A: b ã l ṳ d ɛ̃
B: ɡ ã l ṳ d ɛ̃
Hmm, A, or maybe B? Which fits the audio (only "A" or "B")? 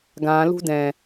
B